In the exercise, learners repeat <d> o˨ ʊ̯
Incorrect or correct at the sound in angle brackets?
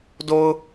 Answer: correct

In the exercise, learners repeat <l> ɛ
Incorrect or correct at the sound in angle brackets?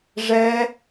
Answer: incorrect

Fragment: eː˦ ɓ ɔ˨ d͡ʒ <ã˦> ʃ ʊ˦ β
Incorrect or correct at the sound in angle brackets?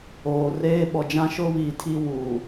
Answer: correct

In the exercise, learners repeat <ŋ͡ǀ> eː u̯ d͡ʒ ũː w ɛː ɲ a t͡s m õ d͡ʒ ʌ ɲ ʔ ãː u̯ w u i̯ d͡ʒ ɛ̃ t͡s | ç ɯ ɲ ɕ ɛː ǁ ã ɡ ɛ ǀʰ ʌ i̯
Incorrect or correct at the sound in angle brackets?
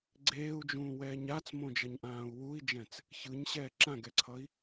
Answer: incorrect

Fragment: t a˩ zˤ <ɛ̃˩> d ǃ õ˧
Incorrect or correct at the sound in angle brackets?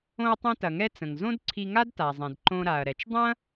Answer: correct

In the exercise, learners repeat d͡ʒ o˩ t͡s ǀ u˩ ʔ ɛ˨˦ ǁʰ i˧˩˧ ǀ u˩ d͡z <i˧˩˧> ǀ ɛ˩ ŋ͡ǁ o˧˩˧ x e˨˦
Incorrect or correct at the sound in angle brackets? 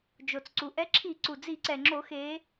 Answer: correct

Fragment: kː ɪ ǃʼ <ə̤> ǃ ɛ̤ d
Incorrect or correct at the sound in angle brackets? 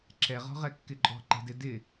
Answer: incorrect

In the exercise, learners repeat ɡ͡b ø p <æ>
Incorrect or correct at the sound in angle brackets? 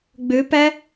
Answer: correct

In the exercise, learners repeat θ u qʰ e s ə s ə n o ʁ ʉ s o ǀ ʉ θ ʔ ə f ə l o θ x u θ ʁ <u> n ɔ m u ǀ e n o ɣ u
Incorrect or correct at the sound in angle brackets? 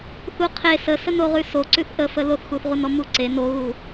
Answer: correct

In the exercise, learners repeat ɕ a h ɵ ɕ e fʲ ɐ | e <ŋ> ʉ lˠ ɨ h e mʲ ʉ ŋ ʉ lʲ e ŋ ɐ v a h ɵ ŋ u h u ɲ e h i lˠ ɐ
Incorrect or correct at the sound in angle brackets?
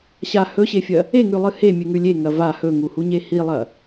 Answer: correct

